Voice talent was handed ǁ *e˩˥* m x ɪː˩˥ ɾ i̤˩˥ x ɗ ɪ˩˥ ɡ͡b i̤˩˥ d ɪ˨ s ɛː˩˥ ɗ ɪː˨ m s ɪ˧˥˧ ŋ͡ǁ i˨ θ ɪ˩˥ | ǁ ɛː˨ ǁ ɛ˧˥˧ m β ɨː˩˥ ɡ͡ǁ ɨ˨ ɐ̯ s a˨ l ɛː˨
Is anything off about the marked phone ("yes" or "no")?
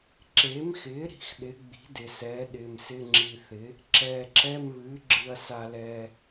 no